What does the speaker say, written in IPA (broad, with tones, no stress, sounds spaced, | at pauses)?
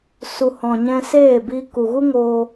s u˨ h ɔ̃˨ ɲ ɛ̃˧ s eː˦˨ b iː˧ k u˨ ɣ u˦ ŋ oː˧